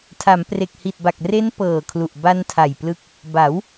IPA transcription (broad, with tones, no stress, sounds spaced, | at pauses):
tʰ a˩˦ m p r e˨˩ k̚ h i˨˩ t̚ b a˨˩ k̚ r e˦˥ n p ɤː˨˩ kʰ l u˨˩ ʔ b a˧ n tʰ a˨˩ j p l ɯ˦˥ k̚ | b a˩˦ w